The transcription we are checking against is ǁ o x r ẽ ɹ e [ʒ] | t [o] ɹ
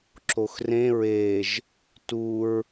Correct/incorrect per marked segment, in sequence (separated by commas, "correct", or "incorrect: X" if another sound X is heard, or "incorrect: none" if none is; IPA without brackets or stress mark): correct, incorrect: u